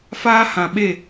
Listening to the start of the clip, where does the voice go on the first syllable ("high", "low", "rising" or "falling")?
high